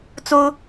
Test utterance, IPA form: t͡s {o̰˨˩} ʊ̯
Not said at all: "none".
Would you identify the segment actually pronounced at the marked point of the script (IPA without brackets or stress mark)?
o˦